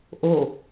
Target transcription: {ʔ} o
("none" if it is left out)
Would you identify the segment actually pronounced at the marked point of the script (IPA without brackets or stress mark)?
ʔ